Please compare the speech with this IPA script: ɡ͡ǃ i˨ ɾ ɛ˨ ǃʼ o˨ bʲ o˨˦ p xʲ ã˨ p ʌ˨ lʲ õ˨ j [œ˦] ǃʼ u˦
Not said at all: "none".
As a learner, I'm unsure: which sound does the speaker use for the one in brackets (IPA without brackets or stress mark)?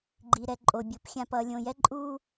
ɛ˦